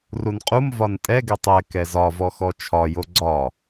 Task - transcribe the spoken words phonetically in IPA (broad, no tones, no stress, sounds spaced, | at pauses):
r u n qʼ u m v ɒ n tʼ ɛ ɡ ɛ tˤ ɛ k ɛ z ɒ v ɔ x ɔ t͡ʃʰ ɒ j o ɡ͡ǀ ɒ